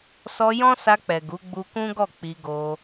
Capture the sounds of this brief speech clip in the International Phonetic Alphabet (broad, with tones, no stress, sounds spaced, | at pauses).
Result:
s ɔ˧ j ɔ̃˦ s a˧ k͡p ɛ˨ ɡ u˨˦ ɡ͡b u˧ k ũ˦ ɡ ɔ˦˨ k͡p i˧ ɡ o˧